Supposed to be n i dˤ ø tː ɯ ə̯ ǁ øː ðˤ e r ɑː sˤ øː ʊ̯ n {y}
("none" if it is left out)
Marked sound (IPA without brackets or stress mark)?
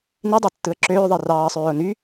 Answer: y